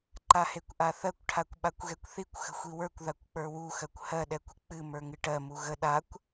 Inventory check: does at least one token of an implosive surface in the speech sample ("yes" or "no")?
yes